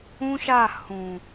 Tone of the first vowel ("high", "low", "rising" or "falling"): high